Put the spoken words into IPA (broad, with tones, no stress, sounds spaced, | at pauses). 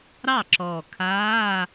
ɾ ɑ˥˩ ǁ ɔː˨˩ kʰ aː˧˥˧